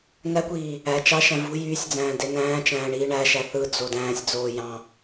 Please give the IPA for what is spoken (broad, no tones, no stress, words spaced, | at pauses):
nækʷiː | æ t͡ʃɑ ʃæ̃vṳ jyːsʲd͡zæ̃ː denæ̃ːt͡ʃæ̃ː ɳiːɳæʃæ θɯd͡zo dæ̃ːsʲd͡zoː jɑ̃